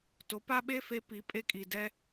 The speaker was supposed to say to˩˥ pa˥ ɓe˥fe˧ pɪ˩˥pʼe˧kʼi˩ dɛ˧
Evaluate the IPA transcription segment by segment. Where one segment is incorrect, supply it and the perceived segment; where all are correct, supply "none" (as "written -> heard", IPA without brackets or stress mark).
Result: ɪ˩˥ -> i˩˥